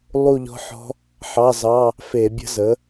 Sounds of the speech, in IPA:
lˠu˥˧ʎɔ̤˦˥ħɔ̤˦˥ | ħɑ˧˥˧zɑ˧˥˧ | fe˧˩˧bʲə̤˦˥zə˩˥

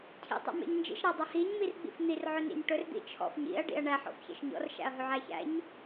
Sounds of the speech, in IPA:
cʰḭ tˤæ̰mḛɲnd͡ʒḭʃ ɾædˤɵhiɲ mirɡ͡bḭfn̪ir ʕɵnḭɲʈɵr d̪ḭt͡ʃʰɔ̰fɲḭɐ̯ ɖḭɐ̯ɳæ ħɔ̰fçḛʃɲɔ̰r ʃæ̰ɐ̯ɦɵʕæçæ̰ɲ

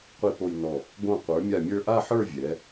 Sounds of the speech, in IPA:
qʷi˧po˧jnɔ˧˩ | ɡõ˧˩qʷə˞˩˧mʲa˧˩mʲə˞˧ ʔa˥˧ħə˞˥˧vʲɛ˩˧

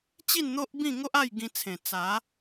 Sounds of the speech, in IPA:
t͡ɕi˥˧nn̪o˦ʔbĩ˥˧ ŋo˦ʔa˥˧jɡĩ˧ t͡sʰẽ˨˩ t͡sa˨˦

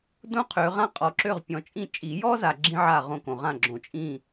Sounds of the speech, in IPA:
dõ˥qʰø˨˦ ʁã˥qʼɔ˨˦ǁø˥˨ʁ pʲɔ̃˨t͡ʃʼĩ˥˨ t͡ʃʼi˨˩˦jɔ˥za˨ ɡ͡ǁĩ˥ʕa˥˨ ʁõ˥˨kõ˨ʁã˥˨ ɡ͡ǁõ˨t͡ʃʼĩ˥˨

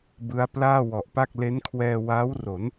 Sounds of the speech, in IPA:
bɯ˦˥a̯ plaː˥˩wɔ˨˩ʔpa˥˩k̚ le˦˥nkʰwɛː˧ waː˦˥wro˩˦n

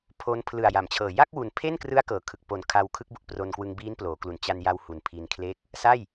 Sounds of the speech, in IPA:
pʰo˦˥n pʰlɯ˨˩a̯ja˩˦mt͡ɕʰɤː˨˩ ja˥˩k̚wu˨˩npʰe˥˩nkrɯ˦˥a̯ kɤː˩˦kʰɯ˨˩k̚ po˨˩n kʰa˧wkʰɯ˦˥k̚bu˨˩ʔ pro˧nkwɯ˧ŋ biː˦˥nploː˩˦klu˨˩n t͡ɕa˧nja˧w hu˨˩npʰi˧nkʰle˥˩k̚ | sa˥˩j

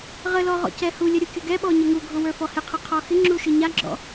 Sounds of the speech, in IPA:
ʁəlɔ ʁɔ̰cɛhulʲə ɾʲukʲʊɡɛɓɔ ɲəŋuɡʱʊ wə˞fɔhɪqʰɨ qʰɔxɪŋ͡ǁu ʃɨɲaɡ͡ǁɔ̰

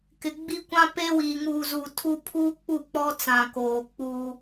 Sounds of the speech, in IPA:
kɪ˨ɡ͡bi˦ kʷã˦pe˦wiː˨ ŋuː˨zu˨ tʰu˦ pʰuː˦k͡pu˦˨ k͡pɔ˦t͡sã˨ koː˨k͡puː˦

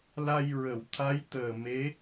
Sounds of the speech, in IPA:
la˧jɹə˨˩˨w t̪ʰa˧˥jt̪əː˨˩me˧˥

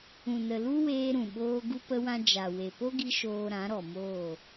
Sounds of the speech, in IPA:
ũ˨nə˨lu˦ weː˧ ɾũ˨ɓoː˧ ɡu˦pə˦wã˦ d͡ʒa˨ we˨po˦ɡi˧ ʃoː˧ ɾã˨˦ɾɔ˨moː˦˨

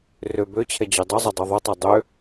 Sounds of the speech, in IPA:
rø bøt͡ɕʰɛ d͡ʑødˤɵzˤɛ dˤʉðˤɵtˤø dˤø

